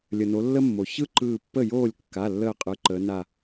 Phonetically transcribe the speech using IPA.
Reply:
lʲə˩no˩˧ lːə˥mːo˩ çɯ˥ ǃɯː˧˩pːə˥˩joː˥˩lʲ kːa˩˧˩lːəː˧˩qʼɯ˩˧ ǃəː˩˧na˧˩

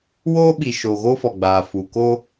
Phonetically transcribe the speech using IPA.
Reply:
woː˦ɓi˨ ʃo˨ ɣoː˦fɔ˨ɡ͡baː˨fuː˨ koː˦

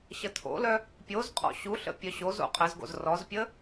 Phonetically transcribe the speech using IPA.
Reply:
ɕətʰo̰lœ | pʲozqʼɔ̰ ɕuɬə̰ pʲœɕozo̰ qʼəzɡo̰z rɔzpʲə

